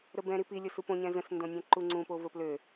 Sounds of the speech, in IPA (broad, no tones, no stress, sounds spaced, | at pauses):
ɾ ə b ɛ̃ ɾ i p i lʲ o s u p õ ɲ ɛ̃ z ə̃ s n d õ nʲ ɛ̃ ǃ u ŋ͡ǀ ũ p o v ə p l ø